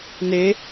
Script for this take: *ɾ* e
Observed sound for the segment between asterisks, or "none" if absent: n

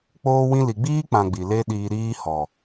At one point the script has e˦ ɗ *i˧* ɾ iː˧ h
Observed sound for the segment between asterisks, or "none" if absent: iː˧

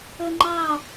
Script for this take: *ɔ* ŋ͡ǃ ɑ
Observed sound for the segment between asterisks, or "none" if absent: ɵ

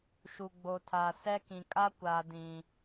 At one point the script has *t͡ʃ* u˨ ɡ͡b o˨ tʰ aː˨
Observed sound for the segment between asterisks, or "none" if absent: ʃ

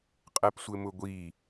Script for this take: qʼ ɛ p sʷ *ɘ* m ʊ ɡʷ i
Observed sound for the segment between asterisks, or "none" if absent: ɘ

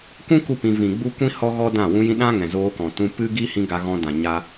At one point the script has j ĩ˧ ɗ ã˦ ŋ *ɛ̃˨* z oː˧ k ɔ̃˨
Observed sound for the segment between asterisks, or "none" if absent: ɛ̃˨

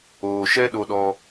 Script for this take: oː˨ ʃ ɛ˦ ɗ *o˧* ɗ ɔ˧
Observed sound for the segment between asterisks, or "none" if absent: o˧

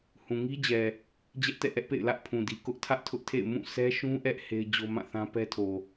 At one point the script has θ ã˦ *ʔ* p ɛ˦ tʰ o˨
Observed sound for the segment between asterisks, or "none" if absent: none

